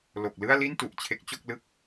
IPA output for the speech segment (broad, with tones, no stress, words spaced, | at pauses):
lo˨˩k̚lɯ˥˩a̯li˥˩n tu˨˩ʔt͡ɕʰe˦˥k̚t͡ɕo˥˩k̚lɯ˥˩k̚